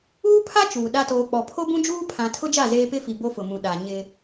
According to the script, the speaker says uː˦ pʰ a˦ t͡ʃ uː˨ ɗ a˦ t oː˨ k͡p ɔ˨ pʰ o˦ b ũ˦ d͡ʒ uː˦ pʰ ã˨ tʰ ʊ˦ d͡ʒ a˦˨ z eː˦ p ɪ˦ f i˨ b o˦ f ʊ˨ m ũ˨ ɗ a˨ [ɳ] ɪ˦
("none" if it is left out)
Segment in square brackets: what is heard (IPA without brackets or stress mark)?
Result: ɲ